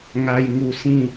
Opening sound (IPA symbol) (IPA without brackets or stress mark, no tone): ŋ